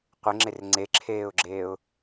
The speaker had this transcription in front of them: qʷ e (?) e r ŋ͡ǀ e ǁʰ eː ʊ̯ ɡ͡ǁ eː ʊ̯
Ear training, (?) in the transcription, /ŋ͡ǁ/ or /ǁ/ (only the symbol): ŋ͡ǁ